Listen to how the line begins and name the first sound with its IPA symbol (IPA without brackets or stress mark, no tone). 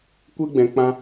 kʷ